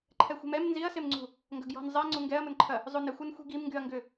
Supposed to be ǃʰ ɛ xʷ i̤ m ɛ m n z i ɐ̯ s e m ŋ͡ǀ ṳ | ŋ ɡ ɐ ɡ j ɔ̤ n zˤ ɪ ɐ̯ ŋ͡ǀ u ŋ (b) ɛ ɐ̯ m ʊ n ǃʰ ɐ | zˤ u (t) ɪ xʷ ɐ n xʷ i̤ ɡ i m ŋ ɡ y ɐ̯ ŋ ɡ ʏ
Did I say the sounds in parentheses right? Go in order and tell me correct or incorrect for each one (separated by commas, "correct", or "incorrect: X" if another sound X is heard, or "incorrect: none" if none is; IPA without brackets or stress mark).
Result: incorrect: ɡ, incorrect: n